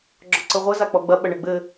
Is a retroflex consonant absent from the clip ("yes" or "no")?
no